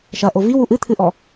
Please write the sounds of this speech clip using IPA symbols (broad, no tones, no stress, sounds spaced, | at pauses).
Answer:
ʃ ɐ ʔ o v i w u ʔ ɨ t̪ʰ ɨ ʔ ɔ